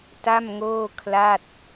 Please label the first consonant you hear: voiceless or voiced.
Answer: voiceless